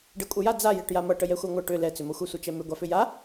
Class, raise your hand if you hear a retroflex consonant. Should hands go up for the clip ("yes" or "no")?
yes